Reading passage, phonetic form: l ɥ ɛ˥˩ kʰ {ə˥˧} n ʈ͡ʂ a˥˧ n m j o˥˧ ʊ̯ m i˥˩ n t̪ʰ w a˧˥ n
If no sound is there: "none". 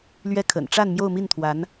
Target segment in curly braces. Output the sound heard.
ə̰˨˩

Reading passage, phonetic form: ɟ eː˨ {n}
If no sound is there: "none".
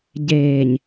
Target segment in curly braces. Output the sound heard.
ɲ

